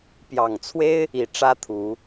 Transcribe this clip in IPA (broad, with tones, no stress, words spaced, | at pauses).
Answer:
pjɑ˨˩ŋt͡sʰwe˥ɪ̯ | i˨˩ ʈ͡ʂä˥t̪ʰu˨˩˦